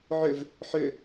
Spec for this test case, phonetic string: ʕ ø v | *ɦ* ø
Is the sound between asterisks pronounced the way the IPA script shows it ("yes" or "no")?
no